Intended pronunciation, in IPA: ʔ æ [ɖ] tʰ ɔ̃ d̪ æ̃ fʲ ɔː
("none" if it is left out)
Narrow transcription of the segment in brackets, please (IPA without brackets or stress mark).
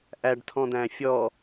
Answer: ɖ